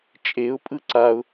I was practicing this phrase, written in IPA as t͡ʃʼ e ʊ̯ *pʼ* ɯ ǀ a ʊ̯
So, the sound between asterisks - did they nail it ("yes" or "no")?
yes